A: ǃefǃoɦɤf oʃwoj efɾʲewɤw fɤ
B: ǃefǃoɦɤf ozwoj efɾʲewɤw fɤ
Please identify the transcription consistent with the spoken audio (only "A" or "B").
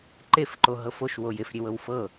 A